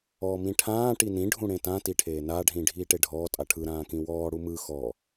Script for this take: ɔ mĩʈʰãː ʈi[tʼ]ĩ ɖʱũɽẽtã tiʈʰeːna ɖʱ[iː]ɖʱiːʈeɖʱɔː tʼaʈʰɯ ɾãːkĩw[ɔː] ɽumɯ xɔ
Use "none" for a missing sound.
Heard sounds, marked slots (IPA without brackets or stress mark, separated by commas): n, ĩː, ɔː